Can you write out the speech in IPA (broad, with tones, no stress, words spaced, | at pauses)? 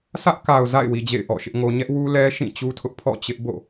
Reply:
sʰä˦ʔka˨ʊ̯ za̰˦˨ɪ̯wi˨ d͡ʑḛ˦˨ɪ̯ʔɔ̰˦˨ʃɪ˦ʔŋo˦ ɲɛ˦ʔwu˦ lɛ˦ʃĩ˦˨ t͡ɕu˦tʰʊ˦ʔpʰɔ̰˦˨ t͡ɕɪ˦ʔbo̰˦˨